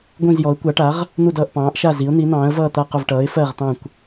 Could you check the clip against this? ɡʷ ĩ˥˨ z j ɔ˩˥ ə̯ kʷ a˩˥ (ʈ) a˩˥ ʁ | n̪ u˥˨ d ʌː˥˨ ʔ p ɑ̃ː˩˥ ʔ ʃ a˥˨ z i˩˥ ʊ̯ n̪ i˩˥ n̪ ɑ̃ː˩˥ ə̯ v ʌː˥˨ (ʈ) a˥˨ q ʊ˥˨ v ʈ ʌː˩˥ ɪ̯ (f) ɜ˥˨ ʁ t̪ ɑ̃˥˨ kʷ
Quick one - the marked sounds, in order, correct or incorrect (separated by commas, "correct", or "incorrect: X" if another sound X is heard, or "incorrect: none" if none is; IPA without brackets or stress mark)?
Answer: correct, incorrect: t̪, correct